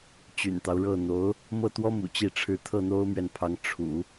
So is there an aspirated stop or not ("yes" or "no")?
yes